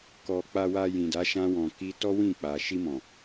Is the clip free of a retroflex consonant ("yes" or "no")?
yes